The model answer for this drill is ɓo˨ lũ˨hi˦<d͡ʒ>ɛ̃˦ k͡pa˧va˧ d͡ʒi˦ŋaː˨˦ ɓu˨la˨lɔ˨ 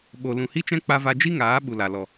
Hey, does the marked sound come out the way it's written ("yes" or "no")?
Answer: no